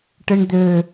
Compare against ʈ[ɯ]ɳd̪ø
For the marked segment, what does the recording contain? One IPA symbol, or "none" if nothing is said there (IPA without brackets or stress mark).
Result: ɯ